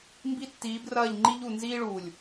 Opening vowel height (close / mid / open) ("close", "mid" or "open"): close